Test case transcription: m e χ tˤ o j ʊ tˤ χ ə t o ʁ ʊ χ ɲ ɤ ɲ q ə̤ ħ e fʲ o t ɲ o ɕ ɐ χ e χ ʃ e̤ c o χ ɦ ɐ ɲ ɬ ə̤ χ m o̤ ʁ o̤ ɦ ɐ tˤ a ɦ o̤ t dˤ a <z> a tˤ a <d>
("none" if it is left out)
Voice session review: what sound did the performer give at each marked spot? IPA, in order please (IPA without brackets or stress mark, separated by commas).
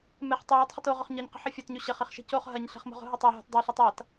ɬ, t